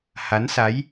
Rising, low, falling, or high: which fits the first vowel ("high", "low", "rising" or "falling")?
rising